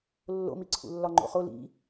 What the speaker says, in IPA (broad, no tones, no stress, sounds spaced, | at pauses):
lː o̰ m i ǀʰ ṵ lː ɒ ŋ͡ǃ o̰ χ o l ḭ